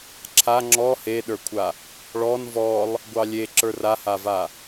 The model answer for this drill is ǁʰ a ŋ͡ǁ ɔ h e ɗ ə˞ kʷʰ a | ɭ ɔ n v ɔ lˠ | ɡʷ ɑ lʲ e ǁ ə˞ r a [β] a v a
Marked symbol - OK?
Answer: no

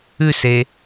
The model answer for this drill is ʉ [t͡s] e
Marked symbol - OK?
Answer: no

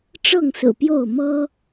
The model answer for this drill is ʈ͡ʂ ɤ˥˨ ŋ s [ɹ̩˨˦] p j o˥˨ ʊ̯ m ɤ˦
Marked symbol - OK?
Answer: no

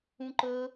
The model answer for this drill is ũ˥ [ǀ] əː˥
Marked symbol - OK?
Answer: no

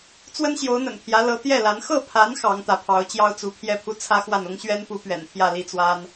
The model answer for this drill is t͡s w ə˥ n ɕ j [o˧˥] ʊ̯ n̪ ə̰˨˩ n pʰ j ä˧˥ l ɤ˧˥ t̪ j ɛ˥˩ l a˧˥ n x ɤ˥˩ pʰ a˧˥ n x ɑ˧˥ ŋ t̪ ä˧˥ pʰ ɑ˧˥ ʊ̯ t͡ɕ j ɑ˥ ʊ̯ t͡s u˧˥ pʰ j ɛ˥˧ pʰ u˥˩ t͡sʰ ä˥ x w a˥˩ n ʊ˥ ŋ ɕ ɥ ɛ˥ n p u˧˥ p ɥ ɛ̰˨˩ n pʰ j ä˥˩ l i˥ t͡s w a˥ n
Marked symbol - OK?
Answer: yes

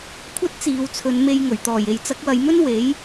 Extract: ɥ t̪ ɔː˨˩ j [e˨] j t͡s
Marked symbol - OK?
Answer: yes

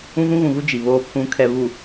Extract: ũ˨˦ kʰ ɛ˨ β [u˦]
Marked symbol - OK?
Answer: no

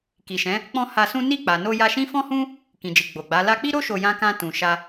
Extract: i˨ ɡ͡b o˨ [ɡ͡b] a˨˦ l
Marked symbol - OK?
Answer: yes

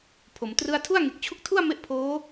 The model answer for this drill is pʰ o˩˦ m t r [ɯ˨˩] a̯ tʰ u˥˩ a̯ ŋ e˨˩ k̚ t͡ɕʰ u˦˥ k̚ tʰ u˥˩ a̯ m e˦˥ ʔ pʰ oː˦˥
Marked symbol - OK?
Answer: no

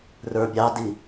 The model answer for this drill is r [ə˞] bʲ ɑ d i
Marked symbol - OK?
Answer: yes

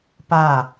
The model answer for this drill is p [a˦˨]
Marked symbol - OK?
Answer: yes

